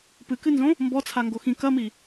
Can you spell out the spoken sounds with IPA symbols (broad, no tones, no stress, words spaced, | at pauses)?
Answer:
pɨkɨnzõ | mbɔt͡sʰaŋɡo xĩ kɐmi